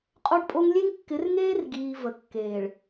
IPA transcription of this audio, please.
qʼ o˦ ɖ pʼ o˦ ŋ lʲ e˦ ŋ kː ɪ˨˦ r ŋ eː˦ r ɡ iː˨ v ə˨ kː eː˨ ɭ

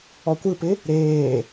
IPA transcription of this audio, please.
ɔ kʷ ɯ p ɪ | ɾ eː

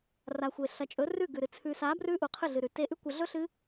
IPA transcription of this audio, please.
r a˨ xʷ e˨ ɬ ɐ˨ t͡ʃʼ ɵ˨˦ r ʉ˦˨ ɡ ʉ˨ ɾ ɨ˨ t͡sʰ ʉ˨ s a˨˦ b r ʉ˦ ʔ u˨ qʰ ɨ˦˨ ɮ ɨ˨ ɾ ʉ˨ t e˧ ʔ ʉ˦ kʷ ɐ˧ ɮ ɵ˦ ɬ ɨ˦

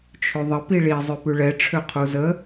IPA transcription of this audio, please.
t͡ʃʰ ø ðˤ ə p i ɭ i zˤ ø p ʉ ɭ ɛ ʈ͡ʂʰ ø qʰ u z ə

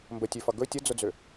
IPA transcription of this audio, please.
m b ə tʲ ø f ʌ ɡ ɵ tʲ ə d͡z ʊ d͡z ø

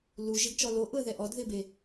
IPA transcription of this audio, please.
l u ʒ ɪ ɡ t͡ʃ ɔ l o ʔ ʊ ə̯ ð ɛ ʔ ɔ d ð ɪ b e

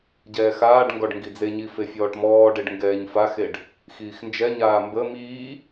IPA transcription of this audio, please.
ɟ ɛː x aː ɖ ŋ ɡ ɔ ɖ ŋ ɡ i d͡z e ɲ i f e fʲ ɔː ʈ m ɔː ɖ e ɖ ŋ ɡ ɛː ɲ f a x e ɖ | x iː x n d͡ʒ ɛ ɲ aː m b ə m iː

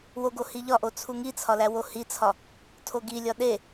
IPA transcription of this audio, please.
w o ɡ o h i ʎ ɒ ʔ o t͡sʰ u ŋ i t͡sʰ ɒ l æ w o h i t͡sʰ ɒ | tʰ o ɡ i lʲ ɒ ɗ e

